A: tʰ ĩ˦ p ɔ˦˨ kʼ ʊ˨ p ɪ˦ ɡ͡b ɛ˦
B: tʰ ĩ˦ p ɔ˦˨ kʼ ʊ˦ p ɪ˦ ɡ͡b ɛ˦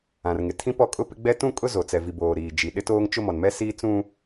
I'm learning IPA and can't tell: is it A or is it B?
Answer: B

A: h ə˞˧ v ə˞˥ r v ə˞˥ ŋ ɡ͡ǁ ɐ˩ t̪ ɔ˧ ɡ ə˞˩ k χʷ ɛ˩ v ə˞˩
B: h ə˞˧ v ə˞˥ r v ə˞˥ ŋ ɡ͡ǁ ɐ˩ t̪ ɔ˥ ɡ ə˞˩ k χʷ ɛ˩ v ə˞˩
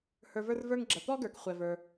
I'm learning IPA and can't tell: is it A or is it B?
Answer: B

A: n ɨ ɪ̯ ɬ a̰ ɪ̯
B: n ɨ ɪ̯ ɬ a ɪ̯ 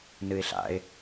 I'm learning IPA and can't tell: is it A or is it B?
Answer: A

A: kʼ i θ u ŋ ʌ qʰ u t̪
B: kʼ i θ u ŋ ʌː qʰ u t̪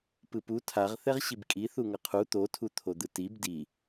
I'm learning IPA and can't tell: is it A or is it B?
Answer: A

